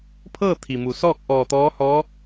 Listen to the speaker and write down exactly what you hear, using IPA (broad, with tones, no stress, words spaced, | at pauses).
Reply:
pʰɤː˥˨ t̪ʰi˩mu˩ sɔː˥˨k̚ ʔɔː˧˩t̪ɔː˧˥hɔː˧˥